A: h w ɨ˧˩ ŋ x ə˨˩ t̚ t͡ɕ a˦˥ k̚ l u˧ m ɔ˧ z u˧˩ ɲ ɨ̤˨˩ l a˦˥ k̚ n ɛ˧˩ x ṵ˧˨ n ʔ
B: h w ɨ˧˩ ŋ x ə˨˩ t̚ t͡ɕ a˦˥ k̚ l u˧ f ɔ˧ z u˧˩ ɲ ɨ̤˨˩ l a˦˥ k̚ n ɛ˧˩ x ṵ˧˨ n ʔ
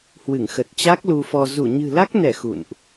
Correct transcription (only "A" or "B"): B